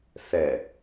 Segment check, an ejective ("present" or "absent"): absent